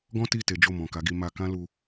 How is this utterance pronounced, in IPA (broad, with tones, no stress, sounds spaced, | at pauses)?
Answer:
ɡ ɔ̃˦ t i˦˨ t e˨˦ d͡ʒ o˦˨ m ɔ̃˨ k a˨˦ ɡ i˧ m a˧ k ã˦ l u˧